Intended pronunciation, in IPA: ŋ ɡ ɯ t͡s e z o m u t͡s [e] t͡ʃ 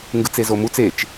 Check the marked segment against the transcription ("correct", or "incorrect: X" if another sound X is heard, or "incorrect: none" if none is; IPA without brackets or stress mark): correct